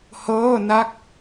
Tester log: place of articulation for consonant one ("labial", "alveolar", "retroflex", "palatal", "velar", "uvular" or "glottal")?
glottal